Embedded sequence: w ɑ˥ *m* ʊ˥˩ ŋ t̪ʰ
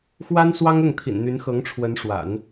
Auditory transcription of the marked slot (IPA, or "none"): ŋ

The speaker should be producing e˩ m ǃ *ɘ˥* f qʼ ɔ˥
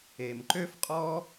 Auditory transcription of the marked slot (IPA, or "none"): ø˥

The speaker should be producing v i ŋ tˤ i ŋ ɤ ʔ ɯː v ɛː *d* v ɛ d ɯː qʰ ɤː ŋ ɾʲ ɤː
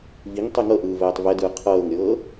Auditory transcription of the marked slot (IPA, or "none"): tˤ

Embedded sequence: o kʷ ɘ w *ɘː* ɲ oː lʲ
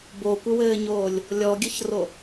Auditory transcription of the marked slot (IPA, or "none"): ɘː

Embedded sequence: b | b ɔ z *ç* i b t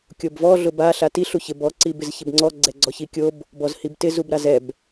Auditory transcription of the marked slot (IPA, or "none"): h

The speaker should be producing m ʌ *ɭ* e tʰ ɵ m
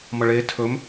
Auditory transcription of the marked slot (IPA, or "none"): ɭ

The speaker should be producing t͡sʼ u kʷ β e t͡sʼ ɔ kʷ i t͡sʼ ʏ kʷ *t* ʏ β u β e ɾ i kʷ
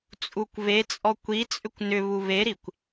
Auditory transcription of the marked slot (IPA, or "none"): n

